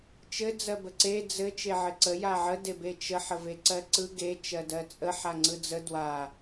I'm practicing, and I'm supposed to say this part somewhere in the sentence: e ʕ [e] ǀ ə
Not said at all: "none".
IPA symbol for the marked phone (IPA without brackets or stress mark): ɘ